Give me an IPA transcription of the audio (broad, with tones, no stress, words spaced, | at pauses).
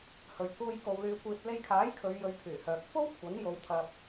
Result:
hɵ˨ɥpʰuː˧j ko˨w lyː˨kʷiː˨t̚le˧jkʰaː˨˥j kʰɵ˨˧ɥjɵ˨˧ɥpʰyː˨˩hœː˨k̚ fo˥w kʷʰɐ˨˥n jo˨˧wt̪ʰɐ˧p̚